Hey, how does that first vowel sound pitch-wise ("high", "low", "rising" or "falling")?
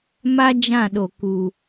high